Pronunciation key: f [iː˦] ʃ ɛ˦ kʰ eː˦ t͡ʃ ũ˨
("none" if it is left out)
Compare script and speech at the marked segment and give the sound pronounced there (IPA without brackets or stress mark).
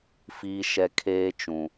iː˦